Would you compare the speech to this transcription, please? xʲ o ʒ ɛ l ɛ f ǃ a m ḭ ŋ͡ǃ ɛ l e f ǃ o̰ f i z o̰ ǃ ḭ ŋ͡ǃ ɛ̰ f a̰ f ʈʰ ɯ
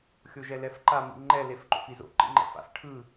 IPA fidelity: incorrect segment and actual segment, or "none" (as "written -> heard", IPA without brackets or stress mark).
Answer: none